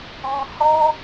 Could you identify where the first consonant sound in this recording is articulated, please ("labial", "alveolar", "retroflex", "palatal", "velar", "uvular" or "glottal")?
glottal